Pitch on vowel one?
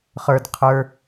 low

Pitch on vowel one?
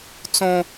high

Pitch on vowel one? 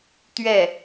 falling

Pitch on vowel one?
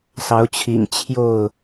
rising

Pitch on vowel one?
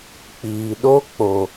low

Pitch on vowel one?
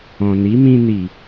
low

